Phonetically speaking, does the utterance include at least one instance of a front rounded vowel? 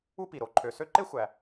yes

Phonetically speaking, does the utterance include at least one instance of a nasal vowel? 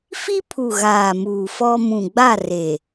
yes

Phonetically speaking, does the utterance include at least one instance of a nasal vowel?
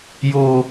no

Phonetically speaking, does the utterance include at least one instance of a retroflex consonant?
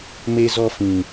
no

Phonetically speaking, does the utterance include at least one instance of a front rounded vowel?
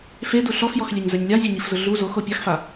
no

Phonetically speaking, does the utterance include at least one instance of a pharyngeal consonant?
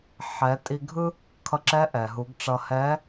yes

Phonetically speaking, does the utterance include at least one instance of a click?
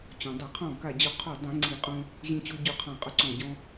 yes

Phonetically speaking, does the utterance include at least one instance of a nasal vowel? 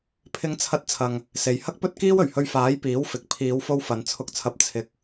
no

